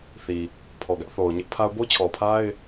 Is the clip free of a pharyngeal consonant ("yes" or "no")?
yes